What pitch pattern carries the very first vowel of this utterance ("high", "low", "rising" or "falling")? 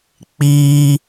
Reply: high